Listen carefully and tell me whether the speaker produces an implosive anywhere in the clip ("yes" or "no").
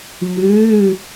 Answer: no